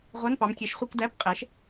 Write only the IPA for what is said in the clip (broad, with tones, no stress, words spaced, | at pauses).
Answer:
ʁʷæ˧˥˧npɑ˨˥m kʲɛ˨˥ʃχʷi˧˥˧k dæ˧˥˧pqʼɛ˨˥ʃ